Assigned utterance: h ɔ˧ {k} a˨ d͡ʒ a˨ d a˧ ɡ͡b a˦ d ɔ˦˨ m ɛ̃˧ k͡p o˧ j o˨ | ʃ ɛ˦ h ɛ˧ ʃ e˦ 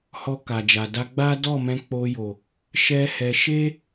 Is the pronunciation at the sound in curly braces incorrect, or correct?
correct